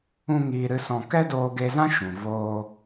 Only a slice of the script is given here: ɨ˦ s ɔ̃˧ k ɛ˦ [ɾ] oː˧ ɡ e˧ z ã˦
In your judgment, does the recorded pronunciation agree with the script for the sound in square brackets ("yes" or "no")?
no